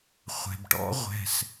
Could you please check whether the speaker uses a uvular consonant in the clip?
yes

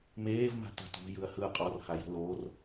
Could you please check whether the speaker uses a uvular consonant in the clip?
yes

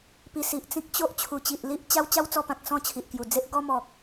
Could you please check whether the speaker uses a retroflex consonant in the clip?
no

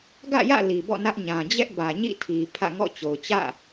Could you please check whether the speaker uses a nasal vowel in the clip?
yes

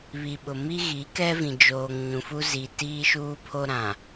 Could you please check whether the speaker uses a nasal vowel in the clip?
yes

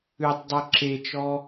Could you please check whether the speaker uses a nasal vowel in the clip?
no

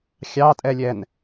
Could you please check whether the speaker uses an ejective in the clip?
yes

